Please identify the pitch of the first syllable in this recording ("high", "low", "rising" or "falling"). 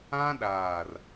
high